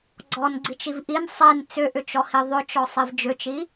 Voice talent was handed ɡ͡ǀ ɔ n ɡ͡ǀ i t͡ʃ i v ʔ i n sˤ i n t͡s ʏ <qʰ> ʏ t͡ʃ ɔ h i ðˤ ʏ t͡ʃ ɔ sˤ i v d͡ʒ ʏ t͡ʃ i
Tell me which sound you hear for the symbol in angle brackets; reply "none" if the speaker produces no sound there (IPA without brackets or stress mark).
ʔ